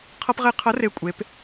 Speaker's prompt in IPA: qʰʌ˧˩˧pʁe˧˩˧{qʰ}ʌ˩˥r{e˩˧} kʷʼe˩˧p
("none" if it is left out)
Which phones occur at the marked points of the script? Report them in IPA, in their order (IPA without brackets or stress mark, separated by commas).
qʰ, e˨˩